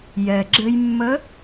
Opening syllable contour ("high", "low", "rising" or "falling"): low